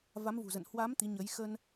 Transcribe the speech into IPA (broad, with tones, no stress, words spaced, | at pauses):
va˨˦mvṳ˨˩zə̰˧˨n hwa˨˦m t̪i˨˦ɲə˨˦j xə˧n